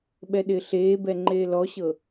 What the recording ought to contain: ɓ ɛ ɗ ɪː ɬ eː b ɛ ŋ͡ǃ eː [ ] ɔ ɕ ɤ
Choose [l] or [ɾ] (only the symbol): l